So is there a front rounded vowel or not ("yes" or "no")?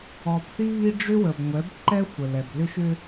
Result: yes